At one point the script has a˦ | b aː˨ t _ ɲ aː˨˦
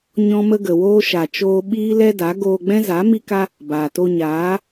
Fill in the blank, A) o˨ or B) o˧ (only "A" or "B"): B